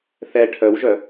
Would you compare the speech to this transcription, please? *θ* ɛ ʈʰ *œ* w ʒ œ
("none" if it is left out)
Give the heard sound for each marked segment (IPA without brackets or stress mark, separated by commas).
θ, œ